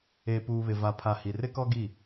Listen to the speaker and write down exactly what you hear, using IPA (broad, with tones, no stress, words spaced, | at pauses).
eː˨puː˨βɪ˨ va˨pʰa˨ hi˨rɪ˦kɔ˦ɡi˦˨